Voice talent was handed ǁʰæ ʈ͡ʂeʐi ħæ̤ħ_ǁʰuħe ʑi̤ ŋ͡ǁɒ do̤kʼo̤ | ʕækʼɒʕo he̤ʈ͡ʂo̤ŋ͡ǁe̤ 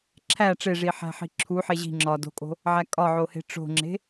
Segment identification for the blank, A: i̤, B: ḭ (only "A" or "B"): A